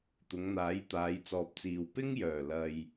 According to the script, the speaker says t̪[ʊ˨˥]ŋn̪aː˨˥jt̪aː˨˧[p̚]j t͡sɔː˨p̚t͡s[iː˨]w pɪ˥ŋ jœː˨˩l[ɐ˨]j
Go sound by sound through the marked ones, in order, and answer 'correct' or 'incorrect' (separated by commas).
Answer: incorrect, incorrect, correct, correct